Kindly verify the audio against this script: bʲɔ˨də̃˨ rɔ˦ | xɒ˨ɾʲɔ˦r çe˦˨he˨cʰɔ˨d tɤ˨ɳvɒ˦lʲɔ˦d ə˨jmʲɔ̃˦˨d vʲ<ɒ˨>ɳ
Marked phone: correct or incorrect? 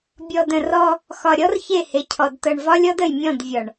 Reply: correct